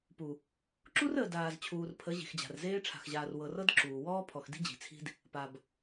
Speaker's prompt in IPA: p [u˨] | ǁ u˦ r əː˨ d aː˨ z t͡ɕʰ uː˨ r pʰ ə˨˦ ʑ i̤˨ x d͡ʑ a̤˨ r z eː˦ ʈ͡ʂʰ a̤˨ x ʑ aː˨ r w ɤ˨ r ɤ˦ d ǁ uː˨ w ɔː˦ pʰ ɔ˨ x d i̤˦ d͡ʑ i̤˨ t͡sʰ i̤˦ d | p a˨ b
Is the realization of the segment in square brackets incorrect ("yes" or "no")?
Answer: no